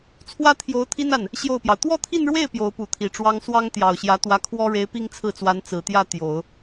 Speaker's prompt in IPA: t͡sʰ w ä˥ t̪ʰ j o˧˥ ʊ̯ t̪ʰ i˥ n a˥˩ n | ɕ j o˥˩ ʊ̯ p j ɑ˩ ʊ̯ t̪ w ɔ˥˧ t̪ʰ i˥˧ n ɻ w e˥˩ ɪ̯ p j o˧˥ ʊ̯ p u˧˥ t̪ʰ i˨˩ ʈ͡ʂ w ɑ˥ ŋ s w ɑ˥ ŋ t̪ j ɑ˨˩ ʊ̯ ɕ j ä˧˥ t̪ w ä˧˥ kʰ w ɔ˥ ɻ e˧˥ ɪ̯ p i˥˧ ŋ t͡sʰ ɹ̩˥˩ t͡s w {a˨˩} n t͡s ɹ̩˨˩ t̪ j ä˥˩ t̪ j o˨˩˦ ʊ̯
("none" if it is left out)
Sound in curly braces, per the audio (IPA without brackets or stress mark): a˧˥